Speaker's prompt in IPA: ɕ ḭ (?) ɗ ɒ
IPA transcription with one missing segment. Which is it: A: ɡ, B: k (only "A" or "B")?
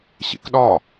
B